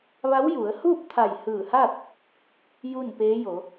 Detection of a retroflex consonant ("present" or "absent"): absent